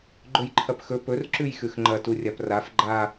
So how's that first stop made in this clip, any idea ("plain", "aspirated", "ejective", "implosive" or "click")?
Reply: click